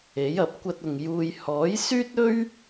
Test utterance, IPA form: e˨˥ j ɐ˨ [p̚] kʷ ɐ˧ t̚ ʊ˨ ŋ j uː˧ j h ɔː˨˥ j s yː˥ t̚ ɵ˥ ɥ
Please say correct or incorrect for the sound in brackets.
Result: correct